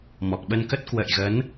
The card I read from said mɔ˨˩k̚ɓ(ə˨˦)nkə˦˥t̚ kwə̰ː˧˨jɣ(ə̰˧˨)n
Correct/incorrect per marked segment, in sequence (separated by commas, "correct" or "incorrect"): incorrect, incorrect